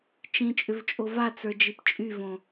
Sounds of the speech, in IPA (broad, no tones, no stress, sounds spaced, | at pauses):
t͡ʃ ĩ t͡ʃʼ ʏ v t͡ʃʼ o v a t͡s ə˞ d͡ʒ i p t͡ʃʼ y v õ